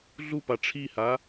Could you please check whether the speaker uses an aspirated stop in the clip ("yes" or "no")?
yes